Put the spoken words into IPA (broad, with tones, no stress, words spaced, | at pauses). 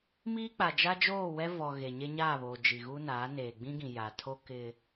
miː˦k͡pa˨ d͡ʒa˦d͡ʒoː˦˨wɛ˦ vɔ˨ ɣe˨ɲe˦ɲaː˦˨βoː˨ d͡ʒi˨ɣu˦naː˨˦ neː˨ɡ͡bĩ˦ɡĩ˨ ja˨tʰo˦ kɪ˦